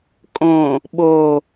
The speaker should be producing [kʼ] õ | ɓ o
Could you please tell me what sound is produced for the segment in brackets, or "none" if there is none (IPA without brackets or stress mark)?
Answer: kʼ